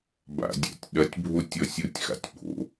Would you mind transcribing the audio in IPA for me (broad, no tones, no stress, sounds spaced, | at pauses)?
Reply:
b a̰ dʲ a̰ tʲ ɗ ɐ tʲ bʱ o tʲ ɔ sʲ o tʲ x a̰ tʲ ɓ o̰